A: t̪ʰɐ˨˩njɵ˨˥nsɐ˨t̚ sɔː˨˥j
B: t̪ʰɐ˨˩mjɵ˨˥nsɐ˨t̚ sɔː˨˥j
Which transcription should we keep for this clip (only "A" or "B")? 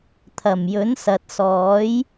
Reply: B